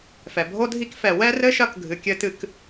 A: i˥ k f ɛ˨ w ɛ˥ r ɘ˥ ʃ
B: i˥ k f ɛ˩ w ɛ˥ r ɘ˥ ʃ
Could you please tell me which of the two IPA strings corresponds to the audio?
A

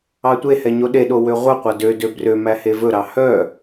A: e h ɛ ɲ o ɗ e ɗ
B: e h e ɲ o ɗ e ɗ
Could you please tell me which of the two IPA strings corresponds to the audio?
A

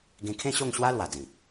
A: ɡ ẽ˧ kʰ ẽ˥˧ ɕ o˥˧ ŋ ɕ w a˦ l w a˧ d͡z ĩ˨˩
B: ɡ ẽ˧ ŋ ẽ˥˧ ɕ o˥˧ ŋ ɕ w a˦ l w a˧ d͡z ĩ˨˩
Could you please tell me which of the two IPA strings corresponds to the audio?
A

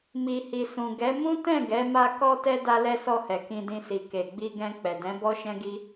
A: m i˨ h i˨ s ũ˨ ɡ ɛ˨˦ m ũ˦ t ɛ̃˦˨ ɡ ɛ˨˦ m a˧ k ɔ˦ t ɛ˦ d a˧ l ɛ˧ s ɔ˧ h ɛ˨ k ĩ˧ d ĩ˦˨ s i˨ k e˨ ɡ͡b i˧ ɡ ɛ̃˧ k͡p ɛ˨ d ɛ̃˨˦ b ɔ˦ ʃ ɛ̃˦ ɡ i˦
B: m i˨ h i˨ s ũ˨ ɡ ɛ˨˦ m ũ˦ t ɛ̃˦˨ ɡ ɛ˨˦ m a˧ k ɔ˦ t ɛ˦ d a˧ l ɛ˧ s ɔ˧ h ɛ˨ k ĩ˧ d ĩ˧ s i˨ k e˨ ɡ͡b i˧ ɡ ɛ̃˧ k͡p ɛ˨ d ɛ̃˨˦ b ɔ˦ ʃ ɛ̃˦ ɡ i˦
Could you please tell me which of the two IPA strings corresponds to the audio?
B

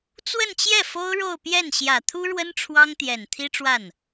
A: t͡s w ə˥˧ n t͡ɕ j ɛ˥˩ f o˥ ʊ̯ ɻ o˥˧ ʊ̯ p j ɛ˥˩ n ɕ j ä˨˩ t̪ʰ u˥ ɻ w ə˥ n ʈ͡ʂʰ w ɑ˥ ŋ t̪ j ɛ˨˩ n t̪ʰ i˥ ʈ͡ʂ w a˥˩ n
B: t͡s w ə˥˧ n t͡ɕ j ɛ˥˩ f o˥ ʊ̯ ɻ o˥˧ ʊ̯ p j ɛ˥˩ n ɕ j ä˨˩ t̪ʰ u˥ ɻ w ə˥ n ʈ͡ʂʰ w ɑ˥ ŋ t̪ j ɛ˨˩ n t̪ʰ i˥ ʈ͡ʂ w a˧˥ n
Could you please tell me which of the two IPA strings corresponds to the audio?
A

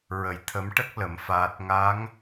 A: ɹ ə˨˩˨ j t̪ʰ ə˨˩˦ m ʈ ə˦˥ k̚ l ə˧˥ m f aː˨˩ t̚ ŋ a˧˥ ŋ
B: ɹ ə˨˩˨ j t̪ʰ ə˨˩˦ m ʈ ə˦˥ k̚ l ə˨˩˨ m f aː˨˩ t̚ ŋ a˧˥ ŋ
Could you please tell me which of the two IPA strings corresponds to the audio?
B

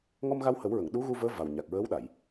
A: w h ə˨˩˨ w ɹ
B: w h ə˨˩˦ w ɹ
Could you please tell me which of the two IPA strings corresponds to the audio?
B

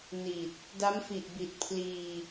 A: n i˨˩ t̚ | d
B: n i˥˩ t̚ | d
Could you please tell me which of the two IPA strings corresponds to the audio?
A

